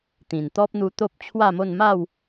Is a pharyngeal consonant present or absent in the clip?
absent